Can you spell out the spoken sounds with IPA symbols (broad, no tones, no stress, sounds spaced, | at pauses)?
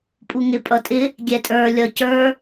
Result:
pʼ u ŋ ɪ pʼ ʌ tʼ ɪ | ɡʲ ɛ tʼ ə˞ lʲ ʌ c ə˞